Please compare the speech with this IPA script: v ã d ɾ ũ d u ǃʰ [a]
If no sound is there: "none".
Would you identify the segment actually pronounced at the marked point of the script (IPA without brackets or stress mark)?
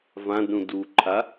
a